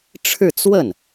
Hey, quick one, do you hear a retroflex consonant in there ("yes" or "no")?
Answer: yes